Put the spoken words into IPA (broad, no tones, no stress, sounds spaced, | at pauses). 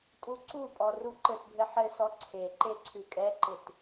tʼ u ǀ u pʼ ɔ r u ǃ ɘ t bʱ ɘ ħ ɘ s ɔ ǀʰ e ǃ e ǀʰ ʉ kʼ ɛ ǃ ɪ t